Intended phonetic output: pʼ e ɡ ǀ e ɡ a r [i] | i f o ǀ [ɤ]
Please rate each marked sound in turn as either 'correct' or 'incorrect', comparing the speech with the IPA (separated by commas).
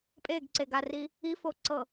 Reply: correct, correct